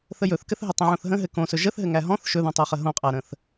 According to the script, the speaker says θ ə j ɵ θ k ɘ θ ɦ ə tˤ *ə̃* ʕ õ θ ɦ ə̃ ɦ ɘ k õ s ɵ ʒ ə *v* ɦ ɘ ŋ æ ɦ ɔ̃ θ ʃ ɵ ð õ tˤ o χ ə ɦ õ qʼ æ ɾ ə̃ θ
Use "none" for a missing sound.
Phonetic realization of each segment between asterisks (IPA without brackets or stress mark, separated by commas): ə̃, θ